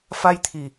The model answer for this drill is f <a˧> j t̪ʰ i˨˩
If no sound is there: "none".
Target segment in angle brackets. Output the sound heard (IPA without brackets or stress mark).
a˧